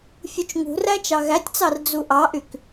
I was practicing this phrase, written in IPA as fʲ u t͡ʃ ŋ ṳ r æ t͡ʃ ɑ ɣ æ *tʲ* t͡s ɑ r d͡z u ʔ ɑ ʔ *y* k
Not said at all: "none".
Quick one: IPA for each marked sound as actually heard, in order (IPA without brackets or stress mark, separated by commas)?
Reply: tʲ, y